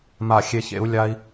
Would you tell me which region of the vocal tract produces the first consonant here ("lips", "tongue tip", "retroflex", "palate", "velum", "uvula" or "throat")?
lips